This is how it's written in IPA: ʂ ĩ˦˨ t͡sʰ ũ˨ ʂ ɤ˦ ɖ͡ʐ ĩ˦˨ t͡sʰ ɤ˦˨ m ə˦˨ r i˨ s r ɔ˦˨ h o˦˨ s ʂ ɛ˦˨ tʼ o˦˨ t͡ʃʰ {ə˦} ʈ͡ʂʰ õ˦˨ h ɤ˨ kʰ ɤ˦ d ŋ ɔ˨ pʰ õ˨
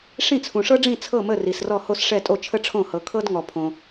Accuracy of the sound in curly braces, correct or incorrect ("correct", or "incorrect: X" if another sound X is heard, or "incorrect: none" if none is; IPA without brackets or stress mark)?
correct